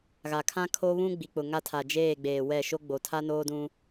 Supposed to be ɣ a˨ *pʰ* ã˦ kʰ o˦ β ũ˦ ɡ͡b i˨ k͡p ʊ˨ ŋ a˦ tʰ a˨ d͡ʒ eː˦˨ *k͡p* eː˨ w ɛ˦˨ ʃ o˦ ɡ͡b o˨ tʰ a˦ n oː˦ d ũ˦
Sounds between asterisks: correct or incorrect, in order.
incorrect: kʰ, incorrect: ɡ͡b

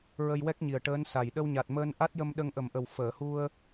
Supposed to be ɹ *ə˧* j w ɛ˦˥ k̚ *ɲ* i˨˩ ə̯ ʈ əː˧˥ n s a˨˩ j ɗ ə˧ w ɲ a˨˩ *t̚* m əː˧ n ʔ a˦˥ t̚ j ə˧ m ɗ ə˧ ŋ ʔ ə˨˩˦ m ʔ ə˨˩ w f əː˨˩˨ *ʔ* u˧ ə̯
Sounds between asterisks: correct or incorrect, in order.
correct, correct, correct, incorrect: h

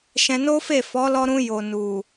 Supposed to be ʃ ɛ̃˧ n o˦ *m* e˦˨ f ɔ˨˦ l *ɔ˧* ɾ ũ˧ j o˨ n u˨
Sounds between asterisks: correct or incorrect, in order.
incorrect: f, correct

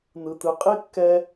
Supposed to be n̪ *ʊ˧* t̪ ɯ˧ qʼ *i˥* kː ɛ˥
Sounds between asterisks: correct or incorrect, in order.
incorrect: ɯ˧, correct

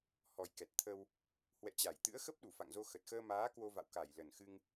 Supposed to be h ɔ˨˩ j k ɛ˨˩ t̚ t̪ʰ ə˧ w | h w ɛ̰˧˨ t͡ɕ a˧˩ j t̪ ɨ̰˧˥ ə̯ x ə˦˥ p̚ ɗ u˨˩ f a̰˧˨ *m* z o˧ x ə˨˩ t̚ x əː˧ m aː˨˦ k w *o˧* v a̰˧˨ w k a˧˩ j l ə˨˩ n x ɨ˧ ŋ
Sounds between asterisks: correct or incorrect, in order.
incorrect: ŋ, correct

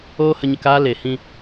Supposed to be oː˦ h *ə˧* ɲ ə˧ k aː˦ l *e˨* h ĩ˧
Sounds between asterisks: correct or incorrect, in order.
correct, correct

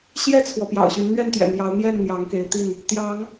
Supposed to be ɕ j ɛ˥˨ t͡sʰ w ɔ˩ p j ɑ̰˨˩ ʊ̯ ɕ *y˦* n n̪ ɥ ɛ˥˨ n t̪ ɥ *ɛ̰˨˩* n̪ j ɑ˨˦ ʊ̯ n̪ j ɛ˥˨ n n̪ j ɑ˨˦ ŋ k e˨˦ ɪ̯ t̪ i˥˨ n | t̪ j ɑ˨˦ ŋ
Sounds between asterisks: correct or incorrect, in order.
incorrect: y˨˦, correct

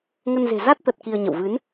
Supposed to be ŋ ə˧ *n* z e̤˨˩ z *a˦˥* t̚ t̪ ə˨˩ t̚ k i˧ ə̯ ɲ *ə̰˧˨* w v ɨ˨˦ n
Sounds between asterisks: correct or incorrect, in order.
correct, correct, correct

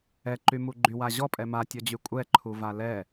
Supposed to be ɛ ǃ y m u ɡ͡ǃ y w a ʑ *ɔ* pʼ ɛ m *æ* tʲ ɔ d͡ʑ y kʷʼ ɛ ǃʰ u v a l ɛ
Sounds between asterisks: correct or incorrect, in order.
correct, incorrect: a

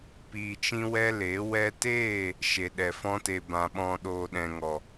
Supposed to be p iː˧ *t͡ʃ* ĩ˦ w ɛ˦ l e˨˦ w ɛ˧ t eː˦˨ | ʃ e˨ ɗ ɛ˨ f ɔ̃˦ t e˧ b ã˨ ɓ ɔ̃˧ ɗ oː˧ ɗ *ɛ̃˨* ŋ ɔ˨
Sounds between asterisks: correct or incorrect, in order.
correct, correct

